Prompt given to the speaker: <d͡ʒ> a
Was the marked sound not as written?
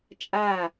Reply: yes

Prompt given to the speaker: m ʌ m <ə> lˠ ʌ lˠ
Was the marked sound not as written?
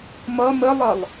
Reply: no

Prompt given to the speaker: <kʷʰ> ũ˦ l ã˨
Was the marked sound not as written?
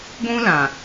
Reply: yes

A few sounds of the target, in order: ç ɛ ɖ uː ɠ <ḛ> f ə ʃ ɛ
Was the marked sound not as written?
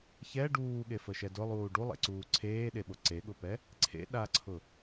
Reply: yes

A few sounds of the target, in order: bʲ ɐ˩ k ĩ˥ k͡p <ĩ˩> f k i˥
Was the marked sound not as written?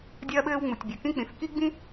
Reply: no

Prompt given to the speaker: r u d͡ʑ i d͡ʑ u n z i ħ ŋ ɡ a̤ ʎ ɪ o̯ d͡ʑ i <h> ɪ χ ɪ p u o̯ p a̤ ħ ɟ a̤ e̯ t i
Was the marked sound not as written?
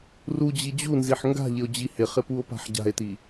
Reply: no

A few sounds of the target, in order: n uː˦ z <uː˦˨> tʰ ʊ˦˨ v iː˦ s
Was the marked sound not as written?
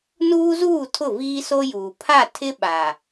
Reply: no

